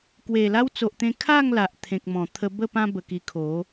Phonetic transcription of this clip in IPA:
k w e˨˩ l a˧ w t͡s o˨ ʔ t̪ ẽ˧ kʰ a˥˧ ŋ l a˨ ʔ t̪ʰ ẽ˨ k̚ m ɔ̃˨˩ t̪ʰ ə˧ b ə˥˧ p ã˦ b ə˧ k i˧ kʰ o˨˦

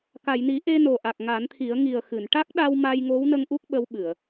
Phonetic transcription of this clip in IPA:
k a˨˩˨ j n i˨˩˦ ʔ e˧ n o˨˩ ʔ a˨˩ k̚ ŋ a˨˩˦ n t̪ʰ i˨˩˦ ə̯ ŋ i˨˩ ə̯ x ɨ˨˩˨ n ʈ a˦˥ k̚ ɗ a˧ w m a˧ j ŋ o˧˥ w n ə˧ ŋ ʔ u˦˥ k̚ ɓ ə˧˥ w ɓ ɨ˨˩˨ ə̯

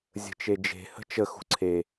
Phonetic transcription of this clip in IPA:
zʲ ə̤ t͡ʃ e d͡ʒ e̤ h ə̤ t͡ʃ ə x ṳ ǀʰ e

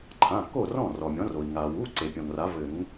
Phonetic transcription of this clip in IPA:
ǃʰ ã˩˧˩ kː o˥˩ r ɔ̃˥˩ r ɔ˩ mʲ ɔ̃˩˥ r o˩ i̯ ŋ a˩ w u˩˧˩ ǀ e˩ pʲ ɔ̃˩ ŋ r a˩˥ v ɘ˨˩˦ ŋ

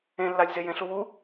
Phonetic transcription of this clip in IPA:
ẽ lː a lʲ z e j ẽ ɬ u w u

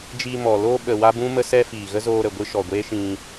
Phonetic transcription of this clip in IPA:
d͡ʒ iː˧ m ɔ˨ l oː˧ ɓ ə˨ w a˦ b ũ˦ m ə˦ s ɛ˦ f iː˨ ɣ ə˦ z oː˧ ɾ ə˨ ɡʷ ɨ˧ ʃ ɔ˨ ɡʷ e˦ ʃ ĩ˧

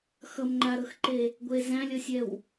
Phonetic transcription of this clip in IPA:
x ʌ m ŋ͡ǃ a ɾ ɤ x ǃ e | ɡʷ e z æ̃ lʲ ʌ sʲ ɛ w

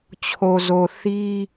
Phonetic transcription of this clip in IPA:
t͡ɕʰ o˨ z o˨ θ i˦

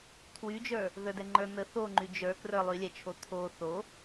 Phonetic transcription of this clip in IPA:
tʰ w y d͡ʒ ə˞ | ð ə˞ d ɛ ŋ͡ǃ ə˞ n̪ ə θ o ŋ͡ǃ y d͡ʒ ə˞ k r ə˞ lˠ y lʲ ɛ t͡ʃʰ o t̪ʰ o θ o

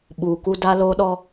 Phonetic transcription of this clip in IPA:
ɓ uː˨ k u˦ d a˦ l oː˦ ɗ ɔ˦

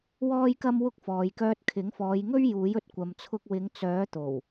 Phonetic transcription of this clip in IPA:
w ɔː˥ j k ɐ˥ m w ʊ˥ k̚ f ɔː˨ j k œː˧ t̚ kʰ ɪ˨˥ ŋ f ɔː˨˧ j ŋ ɵ˥ ɥ j uː˨˥ j ɵ˨ t̚ kʷ ɐ˨ m t͡sʰ ʊ˧ k̚ w ɪ˨˧ ŋ t͡s œː˨˥ t̪ o˨˩ w

